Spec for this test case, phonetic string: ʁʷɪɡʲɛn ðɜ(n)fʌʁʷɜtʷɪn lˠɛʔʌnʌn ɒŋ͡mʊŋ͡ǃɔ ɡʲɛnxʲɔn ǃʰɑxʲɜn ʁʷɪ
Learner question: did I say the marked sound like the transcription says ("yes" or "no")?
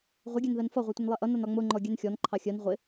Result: yes